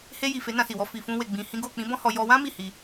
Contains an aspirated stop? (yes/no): no